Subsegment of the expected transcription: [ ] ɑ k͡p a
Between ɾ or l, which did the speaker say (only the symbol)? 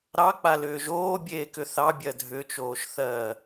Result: ɾ